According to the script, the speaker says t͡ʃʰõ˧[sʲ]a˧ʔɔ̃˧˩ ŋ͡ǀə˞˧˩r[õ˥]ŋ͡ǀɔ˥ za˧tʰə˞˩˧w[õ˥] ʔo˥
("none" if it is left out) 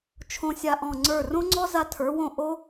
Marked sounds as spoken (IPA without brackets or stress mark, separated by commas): sʲ, õ˥, õ˧˩